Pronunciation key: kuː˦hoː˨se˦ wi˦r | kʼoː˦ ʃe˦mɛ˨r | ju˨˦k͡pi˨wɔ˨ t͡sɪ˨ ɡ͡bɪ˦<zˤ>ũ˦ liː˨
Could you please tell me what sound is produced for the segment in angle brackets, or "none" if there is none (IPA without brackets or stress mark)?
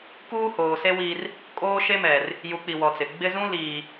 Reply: z